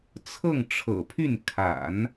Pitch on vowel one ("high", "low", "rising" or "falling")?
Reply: falling